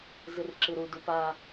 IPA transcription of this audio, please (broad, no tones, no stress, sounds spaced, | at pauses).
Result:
z ɨ r ǁ ɨ ɾ u d u p a